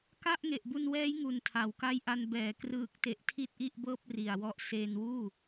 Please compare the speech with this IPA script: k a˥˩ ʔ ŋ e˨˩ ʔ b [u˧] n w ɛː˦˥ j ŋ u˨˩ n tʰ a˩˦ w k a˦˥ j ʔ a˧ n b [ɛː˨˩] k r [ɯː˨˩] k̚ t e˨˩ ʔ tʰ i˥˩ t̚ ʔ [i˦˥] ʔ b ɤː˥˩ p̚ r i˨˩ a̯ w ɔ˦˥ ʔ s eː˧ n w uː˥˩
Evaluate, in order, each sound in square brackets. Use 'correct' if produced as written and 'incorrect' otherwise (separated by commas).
correct, correct, correct, incorrect